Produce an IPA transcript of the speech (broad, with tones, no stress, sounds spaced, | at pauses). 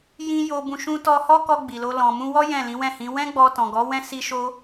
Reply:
j ĩ˦ j o˧ b ũ˧ ʃ ũ˧ t ɔ˧ h ɔ˦ k ɔ˧ ɡ͡b i˨ l o˧ l ɔ̃˨ m ũ˧ w ɔ˦ j ɛ̃˦˨ l ĩ˨˦ w ɛ̃˦˨ h ĩ˨˦ w ɛ̃˦ ɡ͡b ɔ˧ t ɔ̃˨ ɡ ɔ˨˦ w ɛ̃˦ s i˦ ʃ o˦